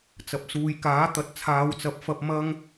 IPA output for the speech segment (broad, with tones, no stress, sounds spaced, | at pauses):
t͡s ɐ˨ p̚ s uː˨ j k aː˨˥ t̪ ɐ˨˥ t̚ t͡sʰ aː˨˧ w t͡s ɐ˨˥ p̚ f ɐ˧ p̚ m ɐ˥ ŋ